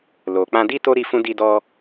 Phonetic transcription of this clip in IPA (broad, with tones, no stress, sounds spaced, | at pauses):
l o˨ k͡p ã˧ d i˦ t o˦ ɾ i˧ f ũ˧ d i˧ d ɔ˧